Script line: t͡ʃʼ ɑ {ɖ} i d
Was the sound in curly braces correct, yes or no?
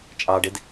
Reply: yes